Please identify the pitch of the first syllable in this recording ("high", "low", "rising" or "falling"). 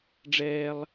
high